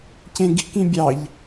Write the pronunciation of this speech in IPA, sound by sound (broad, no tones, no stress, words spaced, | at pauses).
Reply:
cẽɡi̤k ĩbʲɑʎ